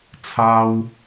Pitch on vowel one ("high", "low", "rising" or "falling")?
low